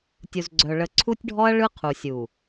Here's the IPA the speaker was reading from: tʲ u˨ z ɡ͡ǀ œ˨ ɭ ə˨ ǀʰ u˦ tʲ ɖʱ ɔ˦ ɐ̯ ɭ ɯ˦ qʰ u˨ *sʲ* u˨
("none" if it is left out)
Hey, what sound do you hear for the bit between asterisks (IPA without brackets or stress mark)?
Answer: sʲ